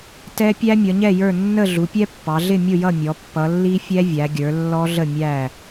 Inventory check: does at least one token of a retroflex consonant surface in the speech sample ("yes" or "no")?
no